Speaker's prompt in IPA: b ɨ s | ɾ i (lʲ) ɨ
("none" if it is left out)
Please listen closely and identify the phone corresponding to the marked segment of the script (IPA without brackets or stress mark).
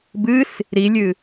lʲ